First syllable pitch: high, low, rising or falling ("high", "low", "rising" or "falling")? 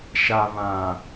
low